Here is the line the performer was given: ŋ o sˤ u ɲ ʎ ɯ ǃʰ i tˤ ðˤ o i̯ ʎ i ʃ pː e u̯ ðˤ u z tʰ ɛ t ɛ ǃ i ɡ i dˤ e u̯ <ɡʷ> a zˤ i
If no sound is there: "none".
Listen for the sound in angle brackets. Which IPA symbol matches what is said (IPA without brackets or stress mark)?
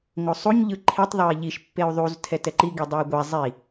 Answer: ɡʷ